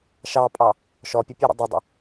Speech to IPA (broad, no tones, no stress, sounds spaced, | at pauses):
ʃ ɑ pʼ ɑ | ʃ ɔ pʲ ə pʲ ɛ ɾ ə̰ dˤ ɐ dˤ ə̰